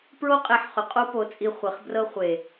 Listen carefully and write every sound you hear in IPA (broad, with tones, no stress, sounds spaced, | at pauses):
p ɹ o˦ qʼ e˨˦ ħ χ ʏ˨ qʼ o˦ p o˨˦ t͡sʼ i˧ χʷ e˨ χ b r ɤ˦ χʷ e˨